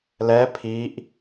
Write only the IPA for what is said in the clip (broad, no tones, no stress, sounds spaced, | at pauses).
l ɛ pʰ i ʔ